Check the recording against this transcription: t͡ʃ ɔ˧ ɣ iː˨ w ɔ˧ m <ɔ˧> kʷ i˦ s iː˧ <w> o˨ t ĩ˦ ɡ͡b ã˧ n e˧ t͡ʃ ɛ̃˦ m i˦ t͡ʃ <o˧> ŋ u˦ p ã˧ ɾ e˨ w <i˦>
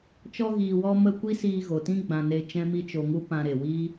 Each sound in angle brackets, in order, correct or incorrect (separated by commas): incorrect, incorrect, correct, correct